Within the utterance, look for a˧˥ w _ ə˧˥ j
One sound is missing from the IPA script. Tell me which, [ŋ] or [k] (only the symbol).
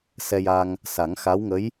ŋ